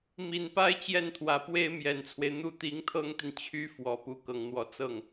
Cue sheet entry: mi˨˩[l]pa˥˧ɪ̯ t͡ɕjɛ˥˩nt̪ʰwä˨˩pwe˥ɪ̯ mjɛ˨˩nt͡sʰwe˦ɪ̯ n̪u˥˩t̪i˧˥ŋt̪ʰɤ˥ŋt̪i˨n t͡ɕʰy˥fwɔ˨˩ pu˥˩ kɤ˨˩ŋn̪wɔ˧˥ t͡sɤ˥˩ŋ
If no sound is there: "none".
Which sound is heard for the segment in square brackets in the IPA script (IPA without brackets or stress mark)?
n